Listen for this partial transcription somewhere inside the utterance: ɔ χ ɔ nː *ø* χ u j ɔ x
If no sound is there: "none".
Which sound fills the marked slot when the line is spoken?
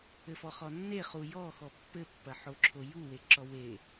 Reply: e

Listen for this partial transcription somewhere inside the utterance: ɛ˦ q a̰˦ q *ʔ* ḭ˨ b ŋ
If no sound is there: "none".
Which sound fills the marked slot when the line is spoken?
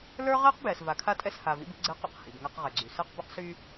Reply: h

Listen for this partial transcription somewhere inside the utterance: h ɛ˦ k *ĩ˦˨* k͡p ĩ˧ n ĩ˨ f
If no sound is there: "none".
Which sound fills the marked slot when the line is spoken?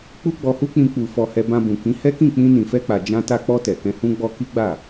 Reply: ĩ˦˨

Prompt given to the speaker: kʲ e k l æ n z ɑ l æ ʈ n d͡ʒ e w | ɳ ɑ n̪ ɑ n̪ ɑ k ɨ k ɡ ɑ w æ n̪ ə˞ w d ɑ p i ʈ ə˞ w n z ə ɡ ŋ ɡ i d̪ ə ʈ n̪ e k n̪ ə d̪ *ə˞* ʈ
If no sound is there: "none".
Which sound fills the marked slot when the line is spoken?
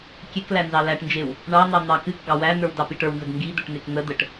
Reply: ə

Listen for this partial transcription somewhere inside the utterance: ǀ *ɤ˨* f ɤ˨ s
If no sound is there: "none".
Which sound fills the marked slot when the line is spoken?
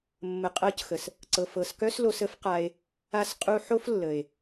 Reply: ɤ˨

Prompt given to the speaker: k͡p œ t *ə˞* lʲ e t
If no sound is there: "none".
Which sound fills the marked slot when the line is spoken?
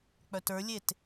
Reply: ə˞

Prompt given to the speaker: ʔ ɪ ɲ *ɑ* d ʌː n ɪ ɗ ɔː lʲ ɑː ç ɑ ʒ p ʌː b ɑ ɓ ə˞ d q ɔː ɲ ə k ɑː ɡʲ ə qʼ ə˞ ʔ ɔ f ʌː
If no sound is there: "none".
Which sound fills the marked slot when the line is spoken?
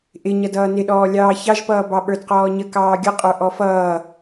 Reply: ʌ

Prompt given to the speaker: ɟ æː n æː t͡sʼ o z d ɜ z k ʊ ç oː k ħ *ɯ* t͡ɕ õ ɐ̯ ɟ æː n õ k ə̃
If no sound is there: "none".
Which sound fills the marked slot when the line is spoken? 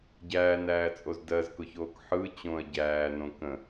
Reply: ɯ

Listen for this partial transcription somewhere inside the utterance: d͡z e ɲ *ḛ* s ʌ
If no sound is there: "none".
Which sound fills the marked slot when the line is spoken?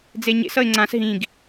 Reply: ḛ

